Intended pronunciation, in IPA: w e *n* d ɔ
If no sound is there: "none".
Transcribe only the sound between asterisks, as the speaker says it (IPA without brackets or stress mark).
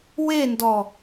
n